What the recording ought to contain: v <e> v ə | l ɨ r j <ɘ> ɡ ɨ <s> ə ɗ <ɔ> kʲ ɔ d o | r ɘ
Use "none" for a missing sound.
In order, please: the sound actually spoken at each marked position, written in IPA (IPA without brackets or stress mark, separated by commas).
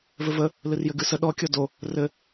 ɘ, ɘ, s, ɔ